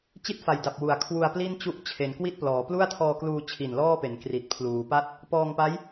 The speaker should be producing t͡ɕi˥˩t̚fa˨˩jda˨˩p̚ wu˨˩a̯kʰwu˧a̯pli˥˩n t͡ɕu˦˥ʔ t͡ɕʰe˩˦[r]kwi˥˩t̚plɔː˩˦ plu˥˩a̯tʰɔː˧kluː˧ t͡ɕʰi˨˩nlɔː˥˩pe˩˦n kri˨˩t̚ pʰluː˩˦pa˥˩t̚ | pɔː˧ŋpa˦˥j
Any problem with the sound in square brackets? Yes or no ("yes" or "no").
yes